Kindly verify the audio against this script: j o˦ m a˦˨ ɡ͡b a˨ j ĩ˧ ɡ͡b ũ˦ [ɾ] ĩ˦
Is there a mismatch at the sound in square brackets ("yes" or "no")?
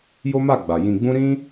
no